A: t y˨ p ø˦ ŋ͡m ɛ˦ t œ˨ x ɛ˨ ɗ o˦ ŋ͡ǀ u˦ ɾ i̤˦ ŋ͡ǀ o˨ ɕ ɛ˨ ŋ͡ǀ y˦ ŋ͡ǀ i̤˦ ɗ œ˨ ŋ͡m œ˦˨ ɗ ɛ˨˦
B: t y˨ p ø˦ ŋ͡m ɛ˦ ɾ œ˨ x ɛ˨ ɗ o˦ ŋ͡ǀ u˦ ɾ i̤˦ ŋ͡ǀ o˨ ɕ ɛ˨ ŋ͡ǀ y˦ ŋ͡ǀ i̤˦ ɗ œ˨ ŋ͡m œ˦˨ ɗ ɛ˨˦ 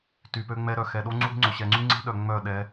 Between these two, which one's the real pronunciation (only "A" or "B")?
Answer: B